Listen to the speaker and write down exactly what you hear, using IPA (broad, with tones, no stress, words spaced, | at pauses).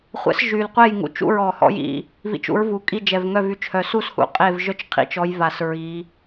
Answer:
χʷɛ̰˨˦s ʒy˨˩lqʷe˦˨jŋṵ˨˩ t͡ʃṵ˦˨ɹɔ˨˩ hɔ̰˨˦j ḭ˨˩ | vḭ˨˦t͡ʃṵ˨˦ɹvu˨˩kʼi˦˨ d͡ʒɛ˨˩vŋœ˦˨vy˨˦t͡ʃhœ˨˩˦ su˦˨s hṵ˨˦qʼe˦˨v ʒœ˦˨t͡ʃqʰḭ˨˩t͡ʃɔ˨˦jva˨˩˦s ɹi˨˦